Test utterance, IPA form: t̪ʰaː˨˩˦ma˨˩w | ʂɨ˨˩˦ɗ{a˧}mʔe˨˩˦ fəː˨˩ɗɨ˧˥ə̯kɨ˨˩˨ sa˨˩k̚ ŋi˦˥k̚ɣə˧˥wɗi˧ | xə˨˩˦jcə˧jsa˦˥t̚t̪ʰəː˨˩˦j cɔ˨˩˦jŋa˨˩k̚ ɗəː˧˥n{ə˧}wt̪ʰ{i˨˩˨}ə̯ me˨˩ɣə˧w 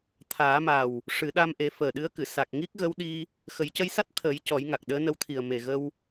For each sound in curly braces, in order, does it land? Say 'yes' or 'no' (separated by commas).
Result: yes, yes, no